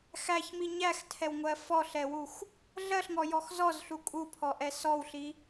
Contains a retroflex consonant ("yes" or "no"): no